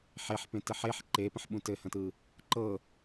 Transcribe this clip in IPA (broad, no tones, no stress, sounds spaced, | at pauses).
ħ e ħ p ẽ t ɘ ħ e ħ ǃ e p ə̃ ħ ɓ ũ t ɘ h ə̃ t ɯ | ǃ ɤ